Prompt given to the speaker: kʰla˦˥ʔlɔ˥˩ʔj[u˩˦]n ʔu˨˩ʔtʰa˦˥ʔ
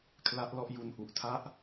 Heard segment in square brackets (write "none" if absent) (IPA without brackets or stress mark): u˧